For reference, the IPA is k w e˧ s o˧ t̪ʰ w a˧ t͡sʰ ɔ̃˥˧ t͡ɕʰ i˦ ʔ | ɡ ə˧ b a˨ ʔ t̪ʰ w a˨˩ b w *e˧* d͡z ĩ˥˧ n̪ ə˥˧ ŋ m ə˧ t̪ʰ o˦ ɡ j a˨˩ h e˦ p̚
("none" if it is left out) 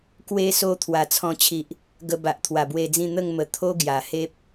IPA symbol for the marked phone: e˧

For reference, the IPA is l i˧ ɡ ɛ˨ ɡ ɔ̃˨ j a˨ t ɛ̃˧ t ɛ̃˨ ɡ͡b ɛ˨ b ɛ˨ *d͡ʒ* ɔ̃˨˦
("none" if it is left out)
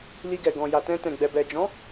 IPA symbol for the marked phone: d͡ʒ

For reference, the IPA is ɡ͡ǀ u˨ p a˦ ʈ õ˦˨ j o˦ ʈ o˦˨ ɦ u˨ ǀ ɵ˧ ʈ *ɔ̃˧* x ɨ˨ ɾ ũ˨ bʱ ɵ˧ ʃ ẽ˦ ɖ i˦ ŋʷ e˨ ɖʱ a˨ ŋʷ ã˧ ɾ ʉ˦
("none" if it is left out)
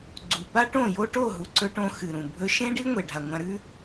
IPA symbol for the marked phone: õ˧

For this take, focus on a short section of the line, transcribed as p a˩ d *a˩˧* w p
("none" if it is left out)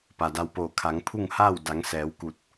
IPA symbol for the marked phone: a˧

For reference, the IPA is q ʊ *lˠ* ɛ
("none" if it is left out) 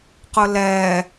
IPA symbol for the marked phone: l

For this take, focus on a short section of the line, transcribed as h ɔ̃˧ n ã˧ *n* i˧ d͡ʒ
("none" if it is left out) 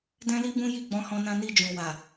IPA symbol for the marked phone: n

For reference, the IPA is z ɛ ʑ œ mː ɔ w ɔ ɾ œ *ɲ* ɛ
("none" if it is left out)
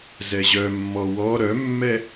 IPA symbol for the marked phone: mː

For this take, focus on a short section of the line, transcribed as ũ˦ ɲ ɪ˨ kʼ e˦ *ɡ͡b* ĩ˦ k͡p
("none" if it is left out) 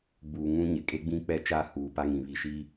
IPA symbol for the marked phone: ɡ͡b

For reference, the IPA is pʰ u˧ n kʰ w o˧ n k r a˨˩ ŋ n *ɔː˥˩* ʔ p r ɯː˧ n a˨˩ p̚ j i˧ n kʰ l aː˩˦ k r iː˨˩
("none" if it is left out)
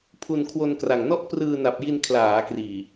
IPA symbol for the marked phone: ɔ˥˩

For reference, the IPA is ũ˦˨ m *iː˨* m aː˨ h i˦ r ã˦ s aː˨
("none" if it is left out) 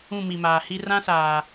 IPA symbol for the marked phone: i˨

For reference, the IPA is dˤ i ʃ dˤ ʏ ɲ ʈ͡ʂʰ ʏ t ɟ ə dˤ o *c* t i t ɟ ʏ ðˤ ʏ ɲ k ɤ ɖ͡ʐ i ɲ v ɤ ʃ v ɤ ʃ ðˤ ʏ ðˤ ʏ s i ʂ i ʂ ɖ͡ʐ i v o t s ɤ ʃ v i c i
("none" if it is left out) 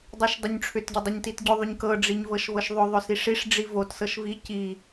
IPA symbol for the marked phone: ɲ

